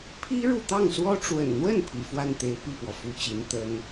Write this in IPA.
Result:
pʰ i˥ ɻ u˥˧ t̪ ɑ˥˩ ŋ s w ɔ˥ ʈ͡ʂ w ə̰˨˩ n n̪ w ə˥˩ n pʰ ḭ˨˩ f w a˥˩ n t̪ e˧˥ ɪ̯ p i˥˩ p w ɔ˩ f u˧˥ t͡ɕ i˧˥ n t̪ ə˥ n

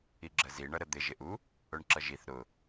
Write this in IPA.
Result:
i ɡ͡ǁ ə z i ɳ ʌ ɾ ə d̪ ɪ ʒ ɪ ʔ u | ʊ ɳ ǁ ʌ ʒ i θ ɾ ʊ

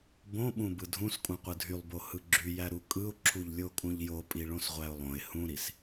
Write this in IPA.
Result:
b õ ɓ ũ b ɯ dʱ ũ s kʼ ũ qʷ ɯ dʱ y lˠ b o h ɯ ɡ͡ǁ y j æ ɾ u kʼ ɯ ʊ̯ ǁʰ u ʎ lʲ o kʼ ũ ʎ j o pʼ i ɭ õ s ʁʷ æ ʊ̯ lˠ õ ɪ̯ h ũ ɾ i s

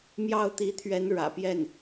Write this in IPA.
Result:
m j ɑ˥˩ ʊ̯ t̪ i˧˥ t̪ʰ ɥ ɛ˧˥ n ɻ ä̰˨˩ p j ɛ˥˩ n

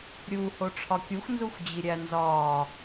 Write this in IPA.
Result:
ɾʲ uː h o ʈ͡ʂʰ ɒ kʲ u x n z u xʷ d͡ʑ i ɾʲ æ n z ɒː

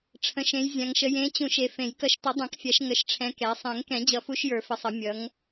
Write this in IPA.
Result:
ʈ͡ʂʰ ə̃˨˦ ʃ ẽ˨˦ j zʲ ã˨˦ ŋ ʃ ə˨˦ j ẽ˨˦ t͡ɕ ũ˨˩˦ ʃ e˨˦ f ẽ˨˩˦ j k ʌ˨˦ ʃ t ʌ˨˩˦ dˤ ɛ̃˨˩˦ k fʲ a˨˦ ʃ ŋ ə˨˦ ʃ ʈ͡ʂʰ ɛ̃˨˦ k ɛ˨˦ sˤ ẽ˨˩˦ ŋ k ɛ̃˨˩˦ d͡ʑ ʌ˨˩˦ f u˨˦ ʃ j ə˞˨˩˦ f ə˨˩˦ sˤ ʌ˨˩˦ mʲ ʌ˨˦ ŋ

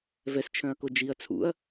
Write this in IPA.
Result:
v ɛ s t͡ʃʰ œ̃ ɐ̯ k o d͡ʒ i ɐ̯ t͡sʰ ṵ ɐ̯

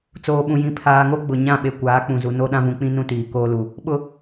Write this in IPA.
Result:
t͡s oː˨ ɓ ũ˨ j ĩ˨ pʰ aː˨ ŋ o˦ ɡ͡b ʊ˨ ɲ ã˦˨ ɓ e˨ kʷ aː˨˦ k͡p ũ˨ z u˨ n o˦ ɗ ã˦ v ũ˨ k͡p ĩ˦ n ũ˦ t iː˨ k oː˦ l u˨ | ɓ ʊ˦

